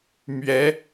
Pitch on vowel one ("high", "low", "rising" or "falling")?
rising